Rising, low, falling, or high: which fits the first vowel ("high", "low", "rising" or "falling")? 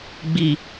low